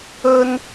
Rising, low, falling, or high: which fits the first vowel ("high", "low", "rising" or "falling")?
high